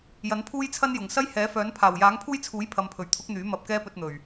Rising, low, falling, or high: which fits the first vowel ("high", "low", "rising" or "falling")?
rising